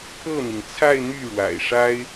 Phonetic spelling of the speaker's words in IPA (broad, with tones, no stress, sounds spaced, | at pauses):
pʰ ɤ˥˩ n̪ i˩ ŋ t͡sʰ a˥˧ ɪ̯ n̪ y˥˩ ɻ w a̰˨˩ ɪ̯ ʂ a˥ ɪ̯